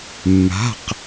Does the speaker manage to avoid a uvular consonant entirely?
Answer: no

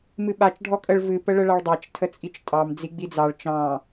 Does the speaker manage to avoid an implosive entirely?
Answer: no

